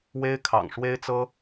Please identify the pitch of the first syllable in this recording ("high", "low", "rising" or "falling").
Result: high